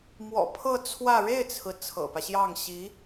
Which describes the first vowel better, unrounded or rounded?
rounded